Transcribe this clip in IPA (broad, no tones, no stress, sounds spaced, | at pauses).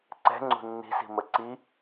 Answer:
ǀ ɛ̤ ŋ͡ǀ ṳ nː i̤ s i̤ m ə ǀ i